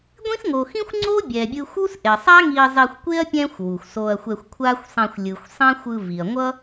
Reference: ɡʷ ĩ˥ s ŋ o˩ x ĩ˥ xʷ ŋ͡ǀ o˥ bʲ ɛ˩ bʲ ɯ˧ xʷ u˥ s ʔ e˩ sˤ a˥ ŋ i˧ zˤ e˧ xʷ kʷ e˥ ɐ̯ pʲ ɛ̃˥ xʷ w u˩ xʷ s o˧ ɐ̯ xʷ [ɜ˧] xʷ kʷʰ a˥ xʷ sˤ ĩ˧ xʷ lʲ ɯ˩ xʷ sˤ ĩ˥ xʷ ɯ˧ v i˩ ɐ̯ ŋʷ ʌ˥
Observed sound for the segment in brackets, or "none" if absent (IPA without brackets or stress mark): ɛ˧